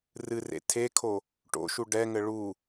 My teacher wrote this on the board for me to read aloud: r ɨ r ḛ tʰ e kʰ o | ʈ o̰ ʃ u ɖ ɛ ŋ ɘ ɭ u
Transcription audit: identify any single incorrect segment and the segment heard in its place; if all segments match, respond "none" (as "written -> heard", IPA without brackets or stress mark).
none